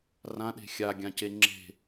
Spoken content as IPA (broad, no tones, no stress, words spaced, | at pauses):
rãɗe̤ xʲaɡʲãce ŋ͡ǁe̤